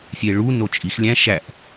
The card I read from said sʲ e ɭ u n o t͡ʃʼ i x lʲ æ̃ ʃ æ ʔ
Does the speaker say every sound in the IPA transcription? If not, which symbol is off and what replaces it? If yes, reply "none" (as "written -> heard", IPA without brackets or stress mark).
none